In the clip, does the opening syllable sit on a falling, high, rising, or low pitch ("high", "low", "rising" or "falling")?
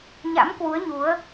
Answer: rising